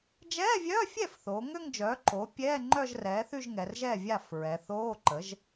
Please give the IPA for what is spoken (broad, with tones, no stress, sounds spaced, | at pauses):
d͡ʒ ɛː˧˥˧ vʲ œː˧˥˧ fʲ ɛ˥˩ f θ oː˩˧ ŋ ø˥˧ ŋ d͡ʒ œː˩˥ ǃ o˩˥ pʲ ɛː˧˥˧ ŋ͡ǃ œ˥˧ ʒ r ɛː˩˥ θ y˥˧ ʒ ŋ ɛ˩˧ r ʒ ɛː˥˩ vʲ a˥˩ f ɹ ɛ˩˧ θ oː˧˥˧ ǃ ə˩˥ ʒ